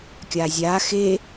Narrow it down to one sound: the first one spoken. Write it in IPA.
kʲ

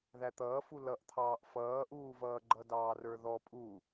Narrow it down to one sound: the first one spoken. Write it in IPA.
ð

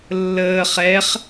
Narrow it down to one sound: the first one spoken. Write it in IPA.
lː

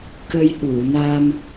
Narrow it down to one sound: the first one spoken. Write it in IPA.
k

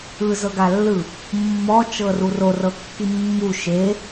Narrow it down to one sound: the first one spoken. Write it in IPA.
ɯ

